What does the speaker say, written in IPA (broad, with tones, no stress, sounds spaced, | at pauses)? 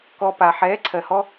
k ɔ˨ p a˨ ħ ɛː˨˦ ǀʰ ɜ˨ h ɔ˧